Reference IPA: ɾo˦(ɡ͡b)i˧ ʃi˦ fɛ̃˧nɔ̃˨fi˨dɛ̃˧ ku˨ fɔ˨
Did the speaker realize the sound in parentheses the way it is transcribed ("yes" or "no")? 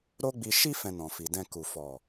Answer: yes